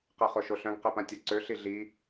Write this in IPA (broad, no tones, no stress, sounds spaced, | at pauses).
q e χ o ʃ o ɬ œ̃ ɡ q e p ã tʲ ɐ ǀ ø ɬ i ɮ i